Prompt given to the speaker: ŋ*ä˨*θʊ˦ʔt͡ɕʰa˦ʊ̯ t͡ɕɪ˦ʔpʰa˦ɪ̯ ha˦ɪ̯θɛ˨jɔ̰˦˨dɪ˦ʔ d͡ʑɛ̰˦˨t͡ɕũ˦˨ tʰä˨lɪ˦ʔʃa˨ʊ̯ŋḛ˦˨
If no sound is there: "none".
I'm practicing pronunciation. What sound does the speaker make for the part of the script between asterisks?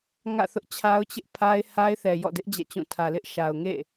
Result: ä̰˦˨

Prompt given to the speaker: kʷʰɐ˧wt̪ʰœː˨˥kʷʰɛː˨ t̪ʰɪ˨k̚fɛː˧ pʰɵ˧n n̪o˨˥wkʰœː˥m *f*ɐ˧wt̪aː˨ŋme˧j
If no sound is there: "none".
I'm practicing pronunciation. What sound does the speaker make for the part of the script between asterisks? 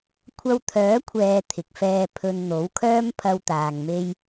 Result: pʰ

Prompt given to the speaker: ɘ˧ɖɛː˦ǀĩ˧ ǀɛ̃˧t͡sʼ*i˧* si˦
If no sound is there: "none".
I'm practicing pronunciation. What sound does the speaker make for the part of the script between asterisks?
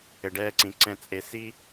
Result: e˧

